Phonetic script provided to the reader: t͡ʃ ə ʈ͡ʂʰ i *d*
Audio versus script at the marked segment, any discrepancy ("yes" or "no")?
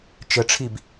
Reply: yes